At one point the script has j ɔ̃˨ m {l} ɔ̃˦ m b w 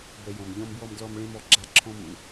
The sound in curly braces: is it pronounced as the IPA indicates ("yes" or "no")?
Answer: no